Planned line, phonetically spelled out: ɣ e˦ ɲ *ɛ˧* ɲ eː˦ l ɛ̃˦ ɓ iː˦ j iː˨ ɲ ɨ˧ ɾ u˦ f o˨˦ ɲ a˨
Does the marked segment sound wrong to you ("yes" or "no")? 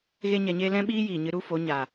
no